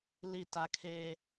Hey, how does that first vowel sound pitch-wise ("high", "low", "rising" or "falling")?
falling